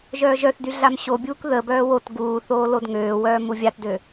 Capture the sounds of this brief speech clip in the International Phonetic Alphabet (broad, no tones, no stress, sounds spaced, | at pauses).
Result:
ʒ œː ʒ œ θ d y ɮ a m ɕ o bʲ uː k ð ə b œː w o t ɡ uː θ oː l o d ŋ øː w œː m u vʲ a t d ø